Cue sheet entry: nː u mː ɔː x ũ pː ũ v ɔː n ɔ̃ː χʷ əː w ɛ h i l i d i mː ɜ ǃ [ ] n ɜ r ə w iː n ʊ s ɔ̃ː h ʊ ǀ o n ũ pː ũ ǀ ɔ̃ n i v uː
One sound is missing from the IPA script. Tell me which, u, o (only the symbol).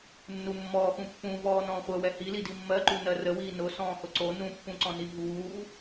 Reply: u